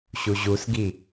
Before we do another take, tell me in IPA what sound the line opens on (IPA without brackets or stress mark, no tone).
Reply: ɕ